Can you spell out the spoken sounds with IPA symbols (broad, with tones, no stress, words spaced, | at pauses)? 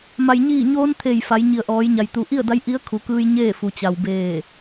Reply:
ma˩jɲiː˧˩ɲoː˧n t̪ʰe˧˩jfa˩˧j ɲi˩ə̯ʔɔː˩˧jɲa˩j t̪u˩˧ʔi˥˨ə̯da˧˥j ʔi˧˥ə̯kʰu˩˧kɯː˧j ɲeː˥˨fu˩t͡ɕa˩w beː˧˩